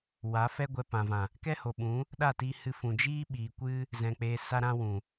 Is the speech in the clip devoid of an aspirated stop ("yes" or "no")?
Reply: yes